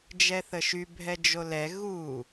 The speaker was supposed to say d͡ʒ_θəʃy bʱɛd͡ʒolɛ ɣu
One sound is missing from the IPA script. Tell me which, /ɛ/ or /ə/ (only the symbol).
ɛ